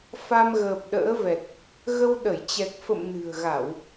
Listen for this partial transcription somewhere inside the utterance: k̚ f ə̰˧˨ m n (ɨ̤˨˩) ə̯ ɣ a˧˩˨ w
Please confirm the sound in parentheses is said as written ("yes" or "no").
yes